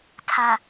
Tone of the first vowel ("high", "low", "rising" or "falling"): low